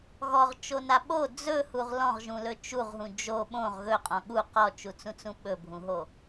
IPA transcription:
ɣ ɔ ʁ t͡ʃ o n a ɓ o d͡z ɵ h u ʁ l ɔ̃ ʁ ʒ ũ l ɵ t͡ʃ u ʁ ɦ ũ d͡ʒ o ɓ õ ʁ ɣ ɵ qʼ ɔ̃ ɠ u q ɔ t͡ʃ u t͡s ũ t͡s ũ ɓ ɵ bʱ ũ ɦ o

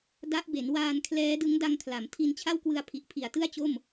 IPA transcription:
d a˦˥ ʔ b e˩˦ n w aː˧ n kʰ l ɛː˦˥ d ɯ˦˥ ŋ d a˧ ŋ kʰ l a˩˦ m tʰ i˧ n t͡ɕʰ a˥˩ w k w ɯ˧ a̯ pʰ i˨˩ ʔ pʰ i˨˩ a̯ t ɯ˥˩ a̯ t͡ɕ o˥˩ m

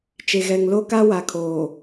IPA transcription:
t͡ʃ e˨ ɣ ɛ˨ ŋ l o˦ k a˦ w a˨ kʰ oː˨

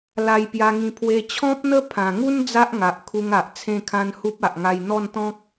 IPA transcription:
l a˧ j p j a˧ ŋ ĩ˧ pʰ w e˧ t͡ɕʰ ɔ̃˦ p̚ n̪ ə˦ pʰ ã˨˩ ŋ u˦ n d͡z a˦ ʔ ŋ a˨ ʔ kʰ u˧ ŋ a˨ ʔ t͡sʰ ẽ˥˧ kʰ ã˦ n h u˦ p̚ a˨ ʔ ŋ a˧ j n̪ ɔ˥˧ n t̪ ɔ̃˦ k̚

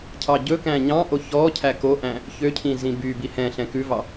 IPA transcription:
cʰ ɑ ɟ ɵ k æ̃ ɲ ɑ̃ ʔ o ç ɔ cʰ æ k o ʔ æ̃ | ç ø cʰ ĩ z ĩ b y b i h ɛ̃ ɬ ɛ̃ k ʉ v ɑ

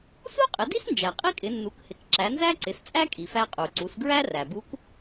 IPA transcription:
s u˥ qʼ ɪ˩˧ d i˥ s n d͡ʒ æ˩ qʼ i˥ kʼ ɪ˩˧ nː u˩˧ k h ɪ˩˧ k ǁ æ˩˧ n z æ˥ ǀ ɪ˩˧ s t͡sʼ æ˥ kʼ i˩ f æ˧ qʼ u˩ ǀ u˩˧ s ɡ ɹ æ˥ r æ˩ b u˧˥ k

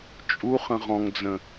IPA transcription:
t͡ʃʼ u χ ə̃ ʁ ɔ̃ ŋ d͡z ə̃

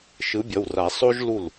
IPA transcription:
ʃ ɯ˨˥ bʲ ʌ˩˧˩ w r a˨˩˦ sˤ o˥ ʒ l u˧˩ l

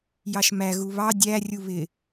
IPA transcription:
j ɑ ʃ m æ ɣ u β ɑ dʲ æ rʲ u β ɪ

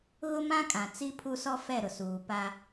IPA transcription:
ɣ ʊ˦ m ã˦ kʼ ã˨ t͡s i˦ pʰ u˦ s ɔ˦ f ɛ˦˨ ɾ ʊ˨ s uː˨ p a˦

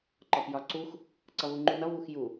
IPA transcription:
ǃ ɒ p j ɒ ǀ u x | ǀ ʌ v u ŋ͡ǃ u n ʌ v u x j u

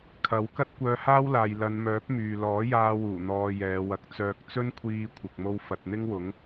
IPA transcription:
kʰ ɐ˨˥ w k ɐ˥ t̚ kʷ œː˧ h aː˥ w l aː˨ j l ɐ˨˧ n m œː˨˥ p̚ m yː˨ l ɔː˨˥ j aː˧ w uː˨˩ n̪ ɔː˨ j ɛː˨˧ w ɐ˧ k̚ t͡s œː˧ k̚ t͡s ɵ˥ n kʷʰ iː˧ kʷʰ ɪ˨ k̚ m o˧ w f ɐ˨ t̚ n̪ ɪ˥ ŋ w ʊ˨˥ ŋ

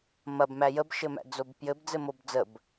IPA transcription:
m ɐ b m æ j ə b ʃ ɘ m æ̰ d͡z o b p j ɘ b d͡z ɘ m o b d͡z ə b

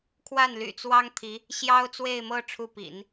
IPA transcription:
kʰ w a˥˩ n l y̰˨˩ t͡s w ɑ˥ ŋ t̪ʰ i˧˥ | ɕ j ɑ˥ ʊ̯ t͡s w e˥˧ ɪ̯ m ɤ˥˧ ʈ͡ʂʰ u˥˩ p ḭ˨˩˦ n

